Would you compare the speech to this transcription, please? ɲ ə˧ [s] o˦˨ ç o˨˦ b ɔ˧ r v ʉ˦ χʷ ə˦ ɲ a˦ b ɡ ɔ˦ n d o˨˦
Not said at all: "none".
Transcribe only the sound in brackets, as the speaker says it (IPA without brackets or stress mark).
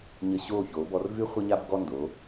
ɕ